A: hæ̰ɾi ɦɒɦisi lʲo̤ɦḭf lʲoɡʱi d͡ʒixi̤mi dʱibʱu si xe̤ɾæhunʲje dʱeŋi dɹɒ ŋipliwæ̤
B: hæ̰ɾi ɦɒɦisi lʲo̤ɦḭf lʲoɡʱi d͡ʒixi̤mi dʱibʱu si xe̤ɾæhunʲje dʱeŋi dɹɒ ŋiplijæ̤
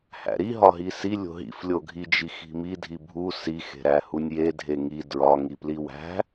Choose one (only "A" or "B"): A